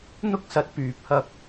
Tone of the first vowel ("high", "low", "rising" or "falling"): high